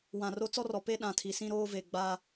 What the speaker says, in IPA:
w ã˨ r o˦ t͡s ɔ˦ r ɔ˨ p e˦ ɗ ã˨ tʰ i˨ s ĩ˦ ɾ oː˦ v e˨ ɡ͡b a˦

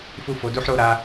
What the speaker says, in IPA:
f u˦ f o˨˦ d u˧ ħ ɾ o˧ ɾ a˧

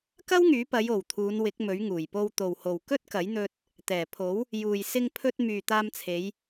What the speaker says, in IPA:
k ɐ˥ w ŋ yː˨˥ p ɐ˨˧ j o˨˩ w t̪ʰ uː˨˧ n w ɪ˨˥ k̚ m ɵ˨˥ ɥ ŋ uː˨˩ j p o˧ w t̪ o˨ w h o˨ w k ɵ˥ t̚ k ɐ˨˥ j n̪ ɵ˧ t̚ | t̪ ɛː˨˩ pʰ o˨˥ w | j uː˨ j s ɪ˧ ŋ pʰ ɵ˧ t̚ m yː˨ t̪ aː˧ m t͡sʰ e˨˧ j

